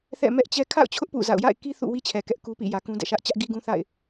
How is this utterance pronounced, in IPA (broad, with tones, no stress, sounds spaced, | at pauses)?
θ ɛ̰˦˨ m ɛ˦ ʔ t͡ɕ ɛ˦ kʰ a̰˦˨ ʊ̯ t͡ɕʰ ʊ˦ ʔ p ṵ˦˨ z a̰˦˨ ʊ̯ j a̰˦˨ ɪ̯ k i˦ θ ṵ˦˨ w i˦ t͡ɕʰ ɛ˨ k ɛ˦ ʔ k u˦ p ḭ˦˨ j ä˨ k ũ˦ d ɛ̰˦˨ ʃ ä˦ ʔ t͡ɕ ä˦ ʔ ɡ i˦ ɡ ũ˦ θ a̰˦˨ ɪ̯